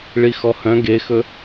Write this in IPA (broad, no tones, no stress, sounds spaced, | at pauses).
ɭ i x ɔ h œ̃ ɡ e x ɵ